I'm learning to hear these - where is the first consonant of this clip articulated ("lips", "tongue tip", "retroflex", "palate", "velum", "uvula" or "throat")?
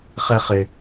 uvula